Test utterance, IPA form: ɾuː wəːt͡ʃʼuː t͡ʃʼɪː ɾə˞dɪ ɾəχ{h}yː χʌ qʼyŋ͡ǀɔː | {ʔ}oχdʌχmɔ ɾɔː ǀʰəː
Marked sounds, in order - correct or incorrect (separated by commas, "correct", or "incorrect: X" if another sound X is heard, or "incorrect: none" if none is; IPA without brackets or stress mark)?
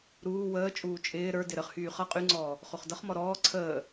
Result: correct, incorrect: χ